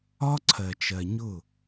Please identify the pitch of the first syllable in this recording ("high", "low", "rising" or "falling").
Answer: high